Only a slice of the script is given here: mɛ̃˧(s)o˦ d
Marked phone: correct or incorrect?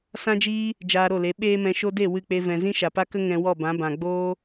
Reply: incorrect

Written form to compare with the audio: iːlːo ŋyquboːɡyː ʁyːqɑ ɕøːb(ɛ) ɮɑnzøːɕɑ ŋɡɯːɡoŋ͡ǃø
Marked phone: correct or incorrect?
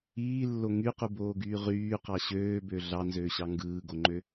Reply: incorrect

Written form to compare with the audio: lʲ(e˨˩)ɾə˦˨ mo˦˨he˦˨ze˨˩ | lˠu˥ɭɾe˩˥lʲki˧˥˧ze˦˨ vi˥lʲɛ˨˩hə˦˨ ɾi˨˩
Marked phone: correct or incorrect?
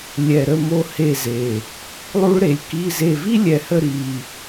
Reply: incorrect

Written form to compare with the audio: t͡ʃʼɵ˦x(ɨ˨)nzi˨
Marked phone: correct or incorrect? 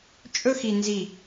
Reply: incorrect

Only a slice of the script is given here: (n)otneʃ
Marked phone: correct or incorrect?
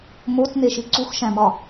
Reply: incorrect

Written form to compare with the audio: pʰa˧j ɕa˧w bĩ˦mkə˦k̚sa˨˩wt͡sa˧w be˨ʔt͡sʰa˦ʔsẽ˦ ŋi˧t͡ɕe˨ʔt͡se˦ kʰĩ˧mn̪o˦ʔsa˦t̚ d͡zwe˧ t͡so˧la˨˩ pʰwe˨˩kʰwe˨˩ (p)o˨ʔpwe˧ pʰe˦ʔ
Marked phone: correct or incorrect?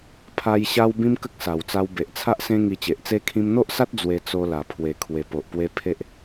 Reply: correct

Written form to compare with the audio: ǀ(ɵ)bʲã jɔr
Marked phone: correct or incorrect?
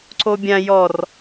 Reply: incorrect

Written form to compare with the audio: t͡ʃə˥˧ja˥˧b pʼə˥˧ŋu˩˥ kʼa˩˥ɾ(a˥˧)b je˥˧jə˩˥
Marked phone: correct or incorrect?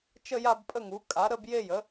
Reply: incorrect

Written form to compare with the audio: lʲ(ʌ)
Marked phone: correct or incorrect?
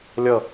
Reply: correct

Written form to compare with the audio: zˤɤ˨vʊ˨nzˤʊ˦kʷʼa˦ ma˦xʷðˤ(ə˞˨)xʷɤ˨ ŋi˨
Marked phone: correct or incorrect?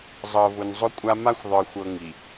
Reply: correct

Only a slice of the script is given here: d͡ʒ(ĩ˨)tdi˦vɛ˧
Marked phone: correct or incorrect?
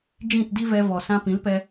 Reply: incorrect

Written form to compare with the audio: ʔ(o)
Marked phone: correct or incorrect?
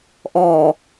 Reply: incorrect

